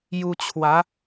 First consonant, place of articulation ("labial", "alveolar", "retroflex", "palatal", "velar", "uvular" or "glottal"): palatal